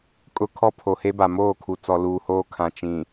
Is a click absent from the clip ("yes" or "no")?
yes